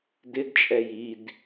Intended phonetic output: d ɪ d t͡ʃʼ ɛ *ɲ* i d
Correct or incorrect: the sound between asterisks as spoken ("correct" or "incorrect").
incorrect